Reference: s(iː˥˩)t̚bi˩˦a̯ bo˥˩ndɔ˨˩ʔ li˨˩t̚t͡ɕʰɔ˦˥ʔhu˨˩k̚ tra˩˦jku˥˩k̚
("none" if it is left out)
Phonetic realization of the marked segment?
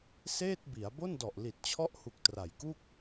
eː˥˩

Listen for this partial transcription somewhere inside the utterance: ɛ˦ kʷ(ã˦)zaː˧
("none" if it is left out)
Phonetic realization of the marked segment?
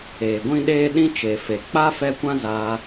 ã˦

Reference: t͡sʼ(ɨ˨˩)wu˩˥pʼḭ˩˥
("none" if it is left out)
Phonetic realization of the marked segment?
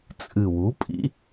ɨ˨˩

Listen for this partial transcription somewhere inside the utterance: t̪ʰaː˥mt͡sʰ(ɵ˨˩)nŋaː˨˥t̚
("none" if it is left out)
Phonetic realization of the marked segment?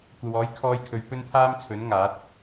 ɵ˨˥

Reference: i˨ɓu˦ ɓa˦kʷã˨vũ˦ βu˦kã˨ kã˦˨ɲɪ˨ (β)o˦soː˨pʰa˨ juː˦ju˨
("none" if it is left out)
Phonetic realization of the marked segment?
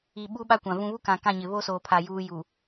β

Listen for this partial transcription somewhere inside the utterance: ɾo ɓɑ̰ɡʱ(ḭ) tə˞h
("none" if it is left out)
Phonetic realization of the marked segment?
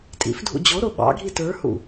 i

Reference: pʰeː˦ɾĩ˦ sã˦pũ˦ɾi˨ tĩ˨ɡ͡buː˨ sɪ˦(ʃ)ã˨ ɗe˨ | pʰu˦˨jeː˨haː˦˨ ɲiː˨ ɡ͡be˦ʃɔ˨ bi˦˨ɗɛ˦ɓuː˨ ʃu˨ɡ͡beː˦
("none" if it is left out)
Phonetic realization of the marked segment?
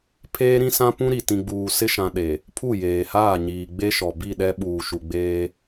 ʃ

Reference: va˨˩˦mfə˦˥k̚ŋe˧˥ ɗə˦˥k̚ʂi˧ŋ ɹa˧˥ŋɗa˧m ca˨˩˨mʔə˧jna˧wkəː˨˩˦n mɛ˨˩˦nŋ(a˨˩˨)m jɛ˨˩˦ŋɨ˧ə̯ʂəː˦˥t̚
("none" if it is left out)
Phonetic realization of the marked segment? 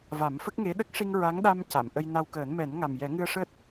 a˨˩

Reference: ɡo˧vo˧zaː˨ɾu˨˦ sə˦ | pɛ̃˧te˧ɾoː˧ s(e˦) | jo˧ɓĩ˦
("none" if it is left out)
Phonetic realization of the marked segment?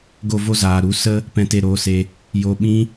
e˧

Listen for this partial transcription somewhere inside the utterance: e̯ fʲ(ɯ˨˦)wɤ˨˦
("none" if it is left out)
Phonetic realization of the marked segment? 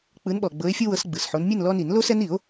ɯ˦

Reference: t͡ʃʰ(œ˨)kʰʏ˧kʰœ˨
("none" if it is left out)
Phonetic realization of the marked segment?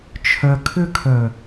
œ˨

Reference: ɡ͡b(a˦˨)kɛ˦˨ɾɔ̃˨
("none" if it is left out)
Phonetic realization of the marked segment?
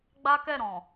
a˦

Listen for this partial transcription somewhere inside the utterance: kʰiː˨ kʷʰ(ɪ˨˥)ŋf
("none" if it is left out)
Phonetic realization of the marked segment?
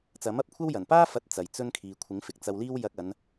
ɪ˨˥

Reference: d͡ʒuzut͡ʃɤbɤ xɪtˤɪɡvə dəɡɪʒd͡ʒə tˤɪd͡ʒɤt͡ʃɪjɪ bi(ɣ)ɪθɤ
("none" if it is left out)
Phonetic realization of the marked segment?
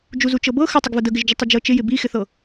x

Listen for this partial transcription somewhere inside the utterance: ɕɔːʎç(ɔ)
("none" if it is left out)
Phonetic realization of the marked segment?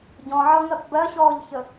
ə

